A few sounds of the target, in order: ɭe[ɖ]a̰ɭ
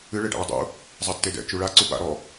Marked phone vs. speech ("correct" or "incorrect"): correct